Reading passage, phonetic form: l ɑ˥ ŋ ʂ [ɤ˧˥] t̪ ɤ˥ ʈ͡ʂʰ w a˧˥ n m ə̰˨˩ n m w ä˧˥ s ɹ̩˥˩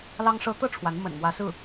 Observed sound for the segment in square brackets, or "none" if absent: ɤ˥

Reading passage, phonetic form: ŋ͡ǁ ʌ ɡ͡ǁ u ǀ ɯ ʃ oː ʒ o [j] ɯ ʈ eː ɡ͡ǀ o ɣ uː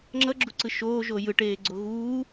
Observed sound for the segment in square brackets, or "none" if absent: j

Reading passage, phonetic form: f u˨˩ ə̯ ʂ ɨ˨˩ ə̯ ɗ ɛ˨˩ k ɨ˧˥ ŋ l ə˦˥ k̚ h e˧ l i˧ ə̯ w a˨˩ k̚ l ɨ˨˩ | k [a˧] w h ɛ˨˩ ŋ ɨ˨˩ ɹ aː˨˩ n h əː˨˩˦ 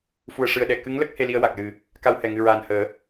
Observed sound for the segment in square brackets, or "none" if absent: a˧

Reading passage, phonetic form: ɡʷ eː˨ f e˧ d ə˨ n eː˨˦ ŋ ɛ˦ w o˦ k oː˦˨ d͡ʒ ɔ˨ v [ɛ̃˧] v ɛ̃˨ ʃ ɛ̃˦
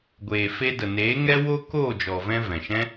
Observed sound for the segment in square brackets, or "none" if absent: ɛ̃˧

